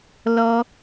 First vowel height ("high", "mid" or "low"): mid